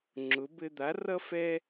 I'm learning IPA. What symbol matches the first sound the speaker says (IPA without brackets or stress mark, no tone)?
ŋ͡ǁ